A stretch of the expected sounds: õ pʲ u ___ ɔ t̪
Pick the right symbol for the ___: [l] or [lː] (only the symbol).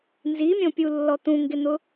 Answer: lː